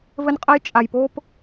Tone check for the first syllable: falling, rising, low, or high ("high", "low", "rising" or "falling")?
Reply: high